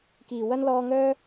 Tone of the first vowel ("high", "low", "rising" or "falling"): low